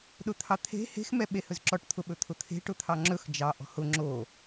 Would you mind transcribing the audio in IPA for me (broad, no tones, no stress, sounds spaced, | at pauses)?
ɗ ʊ t̪ʰ ɑ t̪ʰ e̤ h e̤ x m ɛ ɓ e h ɵ z ǁ ɔ ʈ t̪ʰ ʊ ɓ ɵ t̪ʰ ʊ t̪ʰ e̤ ʈ ʊ t̪ʰ ɑ ŋ͡ǁ ɵ x d͡ʒ ɑ ʔ ɔ̤ h ʊ ŋ͡ǁ o